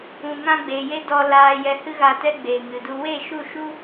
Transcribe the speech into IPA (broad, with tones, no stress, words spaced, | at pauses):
ũ˨ŋã˧ɡ͡be˨je˧ dɔ˧laː˧ jɛ˧hɨ˦ɣa˧tɛ˦ ɡ͡beː˨ŋɨ˨du˧ we˦˨ʃu˦˨ʃu˦